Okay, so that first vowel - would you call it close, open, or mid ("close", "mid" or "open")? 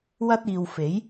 open